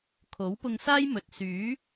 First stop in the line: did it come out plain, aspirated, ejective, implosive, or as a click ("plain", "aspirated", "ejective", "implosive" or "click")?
aspirated